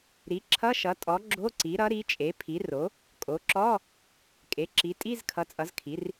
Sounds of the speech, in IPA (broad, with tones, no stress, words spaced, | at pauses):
ɾi˩˥ǁʰʌ˧˥˧ʃʌ˩˥tʼɔ˩˥ ɡ͡ǁo˧˥˧ǀi˩˥ɾʌ˩˥ɾi˩˥ t͡ʃʼe˩˥pʰi˩˥ ro˩˥ | kʼo˩˥ǁɔ˧˥˧ | kʼe˩˥ǁi˩˥ tʼi˧˥˧zkʰʌ˩˥t͡sʼʌ˩˥zkʰi˩˥r